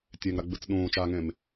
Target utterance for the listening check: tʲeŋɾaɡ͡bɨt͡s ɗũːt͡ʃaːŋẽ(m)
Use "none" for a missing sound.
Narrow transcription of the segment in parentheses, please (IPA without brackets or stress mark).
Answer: m